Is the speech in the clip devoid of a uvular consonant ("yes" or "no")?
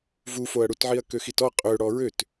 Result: no